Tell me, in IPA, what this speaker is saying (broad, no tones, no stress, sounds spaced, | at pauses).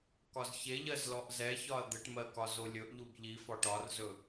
k ɒ z ç e ʎ ɜ z l ɔ ʔ z ɛ ç ɒ ɐ̯ d̪ ɘ ʈ m ɜ k ɒ z o lʲ ɵ ʔ ʎ u b ʎ i f ɒ ʈ ɒ r z ɵ